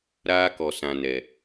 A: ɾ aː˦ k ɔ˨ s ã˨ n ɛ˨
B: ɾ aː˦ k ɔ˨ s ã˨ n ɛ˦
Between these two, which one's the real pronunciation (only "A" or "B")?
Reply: A